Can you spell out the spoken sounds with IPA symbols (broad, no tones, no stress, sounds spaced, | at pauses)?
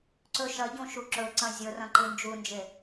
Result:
ǀ ɵ ʃ ɐ ɟ õ ʃ u ǁ ɵ ǀ ɐ̃ zʲ ɵ r ɐ̃ ǃ ɨ n d͡ʒ u n d͡ʒ e